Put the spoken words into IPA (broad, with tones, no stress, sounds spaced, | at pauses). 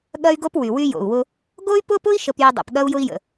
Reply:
ɠ ɐ˦ y̯ ɡ o˦ p w y˨ w y˦ j o̰˨ u̯ w ʊ˦ | ɡ o˦ y̯ p ʊ˦ p ʊ˦ i̯ ʃ ə˦ p j ʊ˦ dˤ o̰˨ p ɠ ɐ˦ u̯ j ʊ˦ i̯ j ə̰˨